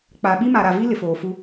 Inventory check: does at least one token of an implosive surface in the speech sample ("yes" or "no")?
yes